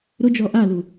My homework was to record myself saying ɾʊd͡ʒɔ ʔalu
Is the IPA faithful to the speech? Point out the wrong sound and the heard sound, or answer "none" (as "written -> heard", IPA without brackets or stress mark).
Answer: none